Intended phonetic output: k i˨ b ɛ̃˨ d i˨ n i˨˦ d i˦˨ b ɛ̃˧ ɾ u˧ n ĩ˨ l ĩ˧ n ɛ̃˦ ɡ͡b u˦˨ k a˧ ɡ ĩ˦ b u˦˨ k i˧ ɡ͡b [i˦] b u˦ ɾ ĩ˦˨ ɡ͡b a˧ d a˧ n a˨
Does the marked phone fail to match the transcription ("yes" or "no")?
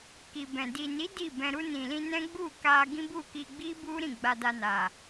no